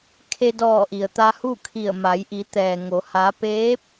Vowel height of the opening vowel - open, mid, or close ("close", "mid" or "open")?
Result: mid